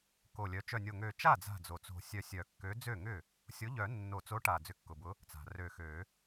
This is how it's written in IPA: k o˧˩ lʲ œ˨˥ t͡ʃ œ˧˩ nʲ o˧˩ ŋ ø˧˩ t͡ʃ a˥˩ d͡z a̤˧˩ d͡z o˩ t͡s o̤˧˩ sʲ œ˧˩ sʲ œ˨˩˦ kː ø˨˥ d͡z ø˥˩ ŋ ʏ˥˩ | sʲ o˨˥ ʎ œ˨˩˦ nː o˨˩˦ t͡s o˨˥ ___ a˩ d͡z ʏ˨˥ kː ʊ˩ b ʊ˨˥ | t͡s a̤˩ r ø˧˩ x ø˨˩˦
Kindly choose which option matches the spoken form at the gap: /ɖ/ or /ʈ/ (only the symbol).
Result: ʈ